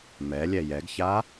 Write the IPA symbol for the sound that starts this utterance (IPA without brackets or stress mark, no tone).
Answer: m